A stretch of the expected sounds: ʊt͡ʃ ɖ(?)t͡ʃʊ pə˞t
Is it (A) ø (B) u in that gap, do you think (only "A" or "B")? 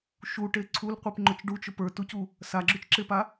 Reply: B